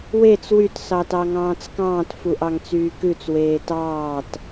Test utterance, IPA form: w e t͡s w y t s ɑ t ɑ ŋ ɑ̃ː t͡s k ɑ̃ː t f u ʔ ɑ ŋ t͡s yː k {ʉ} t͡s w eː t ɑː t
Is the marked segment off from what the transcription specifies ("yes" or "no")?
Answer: no